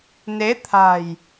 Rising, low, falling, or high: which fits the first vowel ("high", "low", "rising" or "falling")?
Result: rising